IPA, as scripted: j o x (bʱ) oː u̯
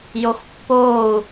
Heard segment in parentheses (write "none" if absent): pː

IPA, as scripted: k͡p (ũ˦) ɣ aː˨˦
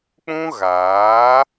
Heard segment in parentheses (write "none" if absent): ũ˦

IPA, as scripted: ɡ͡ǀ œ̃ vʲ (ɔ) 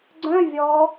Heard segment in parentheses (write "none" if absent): ɔ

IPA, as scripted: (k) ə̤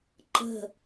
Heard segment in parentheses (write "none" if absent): ǃ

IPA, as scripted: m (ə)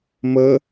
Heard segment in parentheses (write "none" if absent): ə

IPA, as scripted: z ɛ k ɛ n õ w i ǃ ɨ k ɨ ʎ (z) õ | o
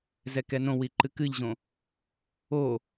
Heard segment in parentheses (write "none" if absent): ʑ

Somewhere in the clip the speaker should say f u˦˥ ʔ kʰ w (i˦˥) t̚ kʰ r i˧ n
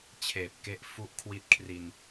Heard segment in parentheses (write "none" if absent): i˦˥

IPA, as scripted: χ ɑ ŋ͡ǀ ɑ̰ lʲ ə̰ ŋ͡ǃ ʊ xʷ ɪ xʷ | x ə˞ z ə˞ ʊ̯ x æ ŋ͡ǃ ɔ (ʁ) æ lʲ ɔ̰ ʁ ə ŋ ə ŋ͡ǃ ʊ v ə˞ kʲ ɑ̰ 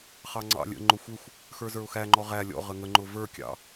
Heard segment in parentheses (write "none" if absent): ʁ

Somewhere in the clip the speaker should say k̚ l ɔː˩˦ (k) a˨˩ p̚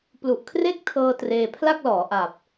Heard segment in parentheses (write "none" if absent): ʔ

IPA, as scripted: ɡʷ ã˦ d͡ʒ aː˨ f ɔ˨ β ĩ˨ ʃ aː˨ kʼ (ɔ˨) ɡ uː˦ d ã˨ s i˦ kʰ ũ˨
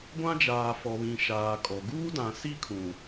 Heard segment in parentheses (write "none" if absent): ɔ˨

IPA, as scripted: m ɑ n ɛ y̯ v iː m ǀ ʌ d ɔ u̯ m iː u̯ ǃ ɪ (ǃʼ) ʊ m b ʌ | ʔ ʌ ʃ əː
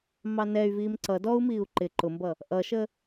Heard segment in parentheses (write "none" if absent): ǃ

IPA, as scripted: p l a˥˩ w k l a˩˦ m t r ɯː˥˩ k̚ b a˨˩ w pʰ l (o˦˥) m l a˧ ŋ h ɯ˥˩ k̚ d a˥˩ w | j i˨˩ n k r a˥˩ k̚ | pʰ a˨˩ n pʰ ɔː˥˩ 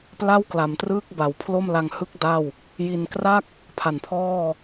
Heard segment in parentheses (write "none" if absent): o˥˩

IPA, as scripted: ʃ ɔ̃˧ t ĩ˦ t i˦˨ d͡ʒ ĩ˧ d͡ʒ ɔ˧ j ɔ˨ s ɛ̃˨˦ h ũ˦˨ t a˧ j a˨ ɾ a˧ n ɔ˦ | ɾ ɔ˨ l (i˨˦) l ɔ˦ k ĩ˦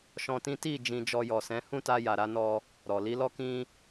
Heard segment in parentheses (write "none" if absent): i˨˦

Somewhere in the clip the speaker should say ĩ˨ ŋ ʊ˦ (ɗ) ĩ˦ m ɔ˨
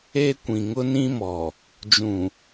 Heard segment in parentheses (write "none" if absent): n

